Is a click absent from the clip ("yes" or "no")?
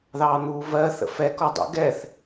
yes